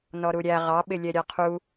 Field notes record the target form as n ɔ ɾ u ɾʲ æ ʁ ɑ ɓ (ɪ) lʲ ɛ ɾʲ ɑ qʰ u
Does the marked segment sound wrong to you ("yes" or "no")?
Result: no